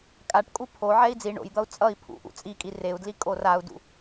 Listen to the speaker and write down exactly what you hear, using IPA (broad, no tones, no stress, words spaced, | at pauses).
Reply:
kʼaʈkʼu pʰoʕɛi̯ d͡zi ɳo̰jd̪ʌu̯ t͡sʼʌi̯ pʰṵʔṵ t͡sʼikʼi reu̯dli kʼorau̯dṵ